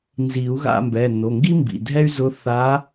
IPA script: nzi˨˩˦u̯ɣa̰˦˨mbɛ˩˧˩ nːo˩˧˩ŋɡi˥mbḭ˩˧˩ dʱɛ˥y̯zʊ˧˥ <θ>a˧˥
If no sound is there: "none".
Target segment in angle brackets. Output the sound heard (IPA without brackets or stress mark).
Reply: θ